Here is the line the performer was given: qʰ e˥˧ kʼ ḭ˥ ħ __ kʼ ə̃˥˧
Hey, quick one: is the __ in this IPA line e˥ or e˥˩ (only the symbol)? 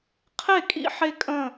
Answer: e˥